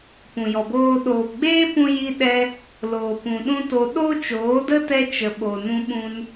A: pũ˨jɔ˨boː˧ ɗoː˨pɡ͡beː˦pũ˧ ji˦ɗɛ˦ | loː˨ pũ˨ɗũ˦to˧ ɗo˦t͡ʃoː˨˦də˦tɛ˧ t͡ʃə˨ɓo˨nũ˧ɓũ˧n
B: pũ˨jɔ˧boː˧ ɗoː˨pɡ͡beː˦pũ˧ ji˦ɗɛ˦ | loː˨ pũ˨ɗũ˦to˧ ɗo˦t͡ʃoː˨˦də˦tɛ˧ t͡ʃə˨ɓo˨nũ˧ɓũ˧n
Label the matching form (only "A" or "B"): A